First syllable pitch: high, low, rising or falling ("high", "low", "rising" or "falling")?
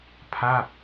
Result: falling